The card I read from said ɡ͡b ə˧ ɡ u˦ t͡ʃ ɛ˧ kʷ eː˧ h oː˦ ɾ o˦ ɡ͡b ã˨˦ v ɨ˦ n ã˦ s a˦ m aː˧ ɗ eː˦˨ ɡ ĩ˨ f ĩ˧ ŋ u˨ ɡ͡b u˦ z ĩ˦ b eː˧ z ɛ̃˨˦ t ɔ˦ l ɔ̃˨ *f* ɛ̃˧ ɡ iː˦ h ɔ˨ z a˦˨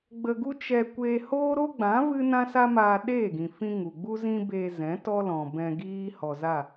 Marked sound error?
yes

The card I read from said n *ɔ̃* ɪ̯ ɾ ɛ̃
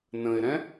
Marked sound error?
yes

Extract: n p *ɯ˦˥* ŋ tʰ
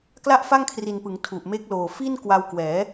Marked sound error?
yes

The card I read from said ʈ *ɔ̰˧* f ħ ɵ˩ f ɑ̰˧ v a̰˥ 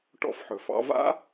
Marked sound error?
no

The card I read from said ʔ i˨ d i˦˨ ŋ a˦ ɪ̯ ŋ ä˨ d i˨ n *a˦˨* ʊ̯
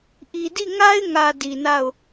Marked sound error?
no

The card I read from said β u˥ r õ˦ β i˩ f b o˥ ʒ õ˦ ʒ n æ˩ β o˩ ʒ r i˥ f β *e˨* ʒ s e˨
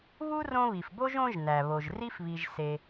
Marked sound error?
yes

